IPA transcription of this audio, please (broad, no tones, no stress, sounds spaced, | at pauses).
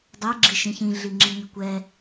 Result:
dˤ ɛ ɡ͡ǁ i ʃ ĩ ç ĩ ɮ i ŋ͡ǁ i ɲ ɵ kʷ ɛ